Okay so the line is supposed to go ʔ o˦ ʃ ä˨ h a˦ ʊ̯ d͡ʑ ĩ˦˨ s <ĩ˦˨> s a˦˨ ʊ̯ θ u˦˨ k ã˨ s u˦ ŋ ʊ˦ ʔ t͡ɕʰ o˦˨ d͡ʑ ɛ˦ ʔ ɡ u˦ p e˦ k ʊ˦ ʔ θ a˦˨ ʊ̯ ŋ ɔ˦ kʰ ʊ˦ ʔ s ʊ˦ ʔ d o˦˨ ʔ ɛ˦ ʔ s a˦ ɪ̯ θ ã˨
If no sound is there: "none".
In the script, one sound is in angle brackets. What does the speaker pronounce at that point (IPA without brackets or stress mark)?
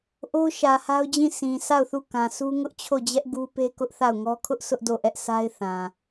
ĩ˨